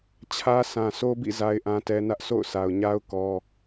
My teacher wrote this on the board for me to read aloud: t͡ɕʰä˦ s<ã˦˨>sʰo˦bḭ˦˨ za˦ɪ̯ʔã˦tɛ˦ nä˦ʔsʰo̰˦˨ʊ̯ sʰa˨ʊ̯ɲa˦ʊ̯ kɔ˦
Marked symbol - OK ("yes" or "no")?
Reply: no